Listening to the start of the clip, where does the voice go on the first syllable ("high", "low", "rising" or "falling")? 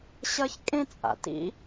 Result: high